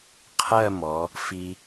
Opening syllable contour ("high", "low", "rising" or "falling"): falling